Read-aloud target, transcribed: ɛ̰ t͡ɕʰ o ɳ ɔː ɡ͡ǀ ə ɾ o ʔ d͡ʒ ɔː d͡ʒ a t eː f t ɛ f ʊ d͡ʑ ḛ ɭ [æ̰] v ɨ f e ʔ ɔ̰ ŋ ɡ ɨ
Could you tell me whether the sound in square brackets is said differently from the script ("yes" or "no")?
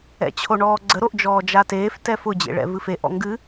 yes